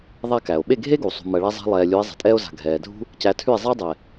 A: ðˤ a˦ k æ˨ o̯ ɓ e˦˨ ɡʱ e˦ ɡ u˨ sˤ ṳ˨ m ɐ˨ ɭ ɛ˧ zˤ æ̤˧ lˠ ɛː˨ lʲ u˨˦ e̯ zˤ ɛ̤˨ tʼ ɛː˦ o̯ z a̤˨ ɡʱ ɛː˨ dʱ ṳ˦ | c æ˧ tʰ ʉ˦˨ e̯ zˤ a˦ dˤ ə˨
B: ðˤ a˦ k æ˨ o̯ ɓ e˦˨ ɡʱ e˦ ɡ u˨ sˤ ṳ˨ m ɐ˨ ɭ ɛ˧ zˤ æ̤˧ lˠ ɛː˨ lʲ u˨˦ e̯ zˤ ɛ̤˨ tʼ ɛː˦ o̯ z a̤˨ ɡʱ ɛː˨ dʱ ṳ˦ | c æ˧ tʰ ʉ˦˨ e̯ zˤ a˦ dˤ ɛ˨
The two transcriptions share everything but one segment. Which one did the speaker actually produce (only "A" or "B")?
B